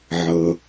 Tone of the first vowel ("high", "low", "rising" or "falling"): low